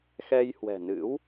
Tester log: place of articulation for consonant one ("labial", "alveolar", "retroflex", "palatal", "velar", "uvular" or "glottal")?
velar